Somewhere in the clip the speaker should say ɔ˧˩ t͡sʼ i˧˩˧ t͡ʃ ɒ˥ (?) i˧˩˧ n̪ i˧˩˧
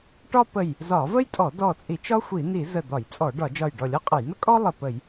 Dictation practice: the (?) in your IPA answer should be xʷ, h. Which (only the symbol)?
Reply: xʷ